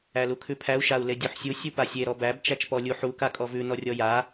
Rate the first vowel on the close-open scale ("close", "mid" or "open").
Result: open